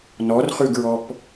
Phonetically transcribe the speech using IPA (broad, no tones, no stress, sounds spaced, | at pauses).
n ɔ r χ ʉ ɡ ɹ ɔ p